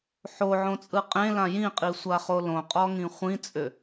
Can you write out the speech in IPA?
ħ o ʕ õ t͡sʼ ɯ qʼ ẽ l ã j ĩ qʼ i sʷ a χ o l õ qʼ ɔ ŋ ĩ χʷ ĩ t͡sʼ ʏ

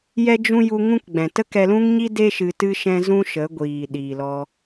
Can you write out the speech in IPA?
j ɛ˦ d͡ʒ ũ˦ j u˧ ŋ ũ˦ k ɡ͡b ɛ̃˨ t ə˦ k ɛ˧ l ũ˦ ŋ ɲ i˦ d e˦ ʃ ɨ˧ t ɨ˦ ʃ ɛ̃˦ z ũ˦ ʃ ə˨˦ ɡʷ iː˨ ɗ iː˨ l ɔ˧

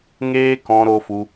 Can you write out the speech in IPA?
ŋ eː˦ k ɔ̃˧ ɾ o˧ f u˧

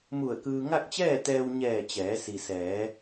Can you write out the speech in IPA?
m u˧˩ ə̯ k ɯː˧ ŋ a˥˨ k̚ t͡ɕ ɛː˥˨ t̪ ɛː˧ w ɲ ɛː˧˩ t͡ɕ ɛː˩˧ s i˩ s ɛː˩˧

